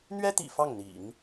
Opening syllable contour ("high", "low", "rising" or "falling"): high